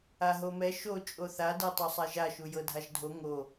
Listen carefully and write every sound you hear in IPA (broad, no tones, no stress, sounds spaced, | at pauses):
a ɦ o m ɛ ʃ o t͡ʃʼ o θ a d ɤ tˤ o sˤ a ʒ a ʃ u j ɤ dʱ a ʒ dʱ o ŋ o